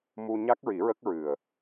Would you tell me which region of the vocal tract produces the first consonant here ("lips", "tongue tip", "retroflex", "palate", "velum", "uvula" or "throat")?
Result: lips